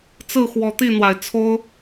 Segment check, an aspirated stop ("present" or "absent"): present